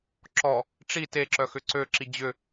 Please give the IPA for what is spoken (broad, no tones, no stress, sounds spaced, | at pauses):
ǁ ɔ | ʈ͡ʂ i t e ǁ œ x ʏ ǀ ø ǁ i d͡ʑ ʏ